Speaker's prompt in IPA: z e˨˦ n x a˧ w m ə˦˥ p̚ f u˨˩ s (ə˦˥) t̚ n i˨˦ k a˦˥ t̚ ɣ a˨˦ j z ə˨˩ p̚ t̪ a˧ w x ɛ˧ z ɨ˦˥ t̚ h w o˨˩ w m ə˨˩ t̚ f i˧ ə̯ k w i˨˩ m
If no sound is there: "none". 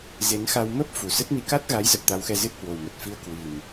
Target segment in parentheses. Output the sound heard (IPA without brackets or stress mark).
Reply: ə˦˥